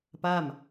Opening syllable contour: falling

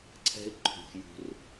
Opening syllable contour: high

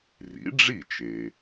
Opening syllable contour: rising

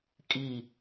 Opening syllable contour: falling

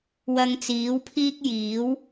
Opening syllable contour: low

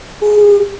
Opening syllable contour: high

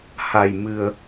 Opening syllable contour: low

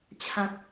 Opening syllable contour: low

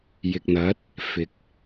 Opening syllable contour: low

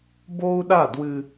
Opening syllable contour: high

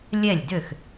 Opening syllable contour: falling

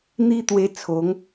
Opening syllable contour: high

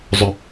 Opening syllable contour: low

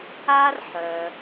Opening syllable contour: high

